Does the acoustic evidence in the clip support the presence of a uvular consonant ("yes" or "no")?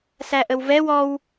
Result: no